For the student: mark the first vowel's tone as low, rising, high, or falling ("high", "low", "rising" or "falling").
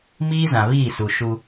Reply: high